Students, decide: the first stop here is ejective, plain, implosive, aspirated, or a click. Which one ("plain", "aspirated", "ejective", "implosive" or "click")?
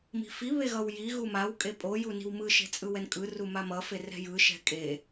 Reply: ejective